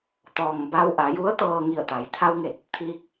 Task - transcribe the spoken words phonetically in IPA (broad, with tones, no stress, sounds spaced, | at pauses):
t̪ ɔː˩ ŋ b a˧ w ʔ a˩˧ j u˧˥ ə̯ t̪ ɤː˧ ŋ i˧˩ ə̯ t̪ a˩˧ j t̪ʰ a˧ w ŋ e˧˩ t̚ | t̪ʰ iː˧ k̚